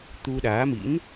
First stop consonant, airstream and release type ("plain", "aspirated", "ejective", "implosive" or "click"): plain